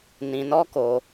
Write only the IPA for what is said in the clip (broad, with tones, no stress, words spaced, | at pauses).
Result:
nĩ˧nɔ˦ko˧